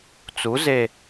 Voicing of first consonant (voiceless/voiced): voiceless